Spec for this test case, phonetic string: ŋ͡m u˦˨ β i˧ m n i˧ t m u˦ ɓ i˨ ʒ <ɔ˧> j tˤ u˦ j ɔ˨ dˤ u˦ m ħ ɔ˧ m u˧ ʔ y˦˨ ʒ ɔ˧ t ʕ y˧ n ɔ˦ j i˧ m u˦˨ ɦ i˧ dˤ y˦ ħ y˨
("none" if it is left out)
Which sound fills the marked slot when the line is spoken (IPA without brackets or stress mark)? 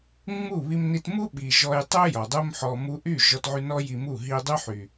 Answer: ɔ˧